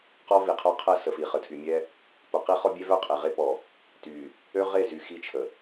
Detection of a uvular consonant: present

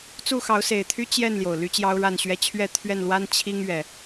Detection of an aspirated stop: present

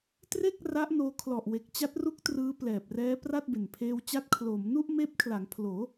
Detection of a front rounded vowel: absent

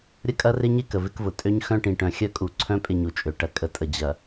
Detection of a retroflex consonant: present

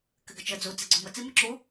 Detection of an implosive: absent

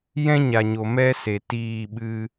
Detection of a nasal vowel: present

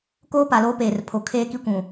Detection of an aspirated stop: present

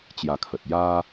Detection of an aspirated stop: present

